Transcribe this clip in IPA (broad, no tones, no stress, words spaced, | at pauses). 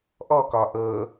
ʔɔkɒ ʔɤ